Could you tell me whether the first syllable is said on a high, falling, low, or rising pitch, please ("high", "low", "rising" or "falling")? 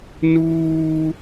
high